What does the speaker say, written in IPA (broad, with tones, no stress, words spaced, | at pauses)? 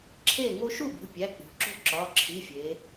ǁʰe˥˨ ŋo˥ ʃu˥˨bo̤˩˧˩ pʲæ˩˧˩ k͡po̤˩˧ǁo̤˥˨ǁɒ˩˧˩ ǁʰi˩˧˩ fʲe˩˧